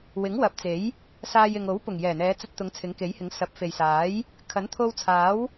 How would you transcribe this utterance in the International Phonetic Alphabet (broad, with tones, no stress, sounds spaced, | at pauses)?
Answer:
w ɪ˨˥ ŋ w ɐ˨˥ p̚ t͡s e˨˥ j | s aː˧ j ɪ˨ ŋ o˨˥ w p ʊ˨˩ ŋ j ɛː˨˩ n̪ ɛː˨˧ t͡s ɐ˧ t̚ t̪ ʊ˨˧ ŋ t͡sʰ ɪ˨˥ ŋ k e˨˥ j h ɪ˨˥ ŋ s ɐ˨˥ p̚ f e˨ j s aː˨˥ j | kʰ ɐ˨˥ n t̪ʰ o˧ w t͡sʰ aː˨˥ w